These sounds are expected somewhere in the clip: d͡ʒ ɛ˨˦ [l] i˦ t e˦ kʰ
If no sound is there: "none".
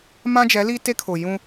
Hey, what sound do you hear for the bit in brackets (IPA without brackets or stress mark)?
l